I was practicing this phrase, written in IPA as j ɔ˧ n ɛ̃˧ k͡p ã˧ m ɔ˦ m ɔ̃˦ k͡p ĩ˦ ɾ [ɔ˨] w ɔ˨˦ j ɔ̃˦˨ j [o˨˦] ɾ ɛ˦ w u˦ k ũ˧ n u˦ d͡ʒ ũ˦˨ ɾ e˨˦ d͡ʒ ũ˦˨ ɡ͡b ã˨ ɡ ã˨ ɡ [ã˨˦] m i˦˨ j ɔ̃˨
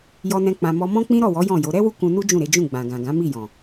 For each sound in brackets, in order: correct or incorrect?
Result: incorrect: ɔ˦˨, correct, correct

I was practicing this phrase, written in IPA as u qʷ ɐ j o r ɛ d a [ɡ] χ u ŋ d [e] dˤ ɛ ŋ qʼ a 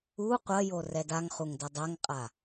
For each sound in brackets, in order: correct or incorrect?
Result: incorrect: ŋ, incorrect: ɘ

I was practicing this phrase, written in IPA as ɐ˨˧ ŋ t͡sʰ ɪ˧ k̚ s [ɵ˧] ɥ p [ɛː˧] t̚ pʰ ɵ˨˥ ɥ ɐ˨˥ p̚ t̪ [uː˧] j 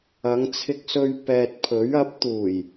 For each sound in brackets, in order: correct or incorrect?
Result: correct, incorrect: ɛː˨, incorrect: uː˨˩

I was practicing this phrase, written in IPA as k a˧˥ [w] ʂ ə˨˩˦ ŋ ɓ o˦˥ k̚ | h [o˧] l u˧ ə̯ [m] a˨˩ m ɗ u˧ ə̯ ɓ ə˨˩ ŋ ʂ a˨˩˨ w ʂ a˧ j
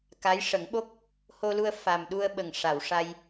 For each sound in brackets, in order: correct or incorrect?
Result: incorrect: j, correct, incorrect: f

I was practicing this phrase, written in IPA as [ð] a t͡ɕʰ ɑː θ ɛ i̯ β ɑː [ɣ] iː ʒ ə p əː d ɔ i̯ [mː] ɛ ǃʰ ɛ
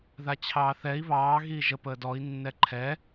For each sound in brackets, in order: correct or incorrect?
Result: correct, correct, incorrect: nː

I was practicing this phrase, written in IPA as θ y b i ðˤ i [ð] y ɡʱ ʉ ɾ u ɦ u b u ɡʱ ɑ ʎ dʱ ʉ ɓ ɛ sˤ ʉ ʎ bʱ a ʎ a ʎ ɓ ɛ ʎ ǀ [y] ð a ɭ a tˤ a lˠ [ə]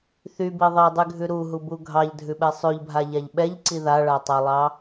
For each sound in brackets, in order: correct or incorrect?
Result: incorrect: dˤ, incorrect: i, incorrect: ɑ

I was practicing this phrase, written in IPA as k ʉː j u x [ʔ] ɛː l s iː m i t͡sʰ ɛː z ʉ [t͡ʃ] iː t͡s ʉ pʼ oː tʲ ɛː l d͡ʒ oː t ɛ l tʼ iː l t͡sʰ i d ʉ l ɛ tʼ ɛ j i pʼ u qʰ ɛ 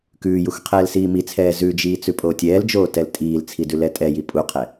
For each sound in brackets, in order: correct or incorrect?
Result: incorrect: qʰ, incorrect: d͡ʒ

